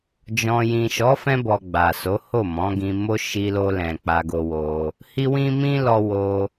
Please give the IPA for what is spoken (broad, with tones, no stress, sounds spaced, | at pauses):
d͡ʒ ɔ̃˧ j ĩ˨ ʃ ɔ˨˦ f ɛ̃˧ b ɔ˨ ɡ͡b a˨ s o˨˦ h o˦˨ m ɔ̃˨˦ ɡ ĩ˧ m o˦ ʃ i˧ l o˧ l ɛ̃˨ k͡p a˧ ɡ o˧ w o˧ | h i˦ w ĩ˦ m ĩ˦ l ɔ˦ w o˧